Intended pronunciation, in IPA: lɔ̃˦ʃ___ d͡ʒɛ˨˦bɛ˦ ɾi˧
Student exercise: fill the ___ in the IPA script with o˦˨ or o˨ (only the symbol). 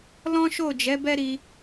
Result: o˦˨